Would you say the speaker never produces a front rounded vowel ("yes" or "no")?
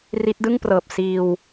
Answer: yes